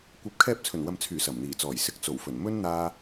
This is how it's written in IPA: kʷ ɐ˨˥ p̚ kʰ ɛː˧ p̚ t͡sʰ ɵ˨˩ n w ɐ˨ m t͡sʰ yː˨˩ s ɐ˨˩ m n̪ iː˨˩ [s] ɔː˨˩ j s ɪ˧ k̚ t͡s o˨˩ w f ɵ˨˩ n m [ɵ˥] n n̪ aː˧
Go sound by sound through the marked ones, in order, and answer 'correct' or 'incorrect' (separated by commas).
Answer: incorrect, correct